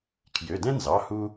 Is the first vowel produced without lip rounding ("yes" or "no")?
no